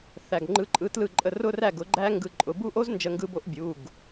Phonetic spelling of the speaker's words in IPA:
θ æ˩˧˩ ɡ ŋ͡ǃ ɯ˧˥˧ ǃʼ ɯ˧˥˧ t l ɯ˥˩ ǃʼ ə˥˩ r ʊ˦˥ r æ˥˩ ɡ ʊ˨˩˦ ɡ͡ǃ æ˦˥ ŋ ɡ ɯ˧ ǃʼ ʊ˩˧˩ b u˦˥ ʔ o˦˥ z n d͡ʒ ə˧ ŋ ɡ ɯ˧ b o˦˥ ʔ bʲ u˩˧˩ ɡ

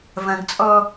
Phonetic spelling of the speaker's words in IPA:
v ɐ̃ ɡ t͡sʼ ɔ

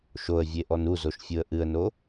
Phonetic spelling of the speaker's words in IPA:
ʃ o ə̯ vʲ e ʔ ɔ n u z o ʃ fʲ u ə̯ ʔ ɨ ə̯ n o

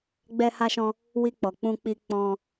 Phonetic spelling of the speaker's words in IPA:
ɡ͡b ɛ˧ h a˧ ʃ ɔ̃˧ | w i˧ k͡p ɔ˨ k͡p ũ˧ k͡p i˧ k͡p ɔ̃˧

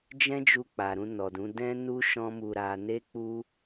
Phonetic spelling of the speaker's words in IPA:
d͡ʒ ɛ̃˦ d͡ʒ u˧ k͡p a˨ ɾ ũ˧ n ɔ˨ d ũ˨˦ d ɛ̃˦ n u˦ ʃ ɔ̃˦ m u˧ ɾ a˧ n e˦ k͡p u˦

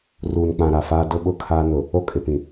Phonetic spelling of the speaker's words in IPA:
r uː˨ n k͡p ã˨ ɾ a˨ f aː˦ d ʊ˦ ɓ ʊ˦ kʰ aː˦ n ʊ˨ | o˦ kʼ ɪ˨ p ĩ˨

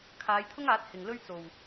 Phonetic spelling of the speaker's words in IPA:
kʰ aː˨˧ j t̪ʰ ʊ˥ ŋ aː˨˥ t̚ h ɪ˨˩ ŋ l ɵ˥ ɥ t͡s o˨˩ w

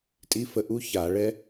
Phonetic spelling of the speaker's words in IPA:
tʼ i˦˥ f ə˥˩ ʔ u˦˥ ç a˧˩˧ ɭ ɛ˦˥

